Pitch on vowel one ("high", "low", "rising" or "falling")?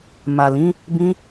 low